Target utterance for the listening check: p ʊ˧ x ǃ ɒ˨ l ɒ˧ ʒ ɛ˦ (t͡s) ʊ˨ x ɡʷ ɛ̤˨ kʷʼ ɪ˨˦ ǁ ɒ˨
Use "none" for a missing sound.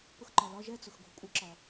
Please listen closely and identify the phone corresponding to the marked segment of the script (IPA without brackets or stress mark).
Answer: t͡s